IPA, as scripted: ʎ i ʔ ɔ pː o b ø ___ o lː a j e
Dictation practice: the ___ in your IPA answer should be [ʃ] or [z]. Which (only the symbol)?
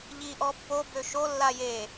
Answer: ʃ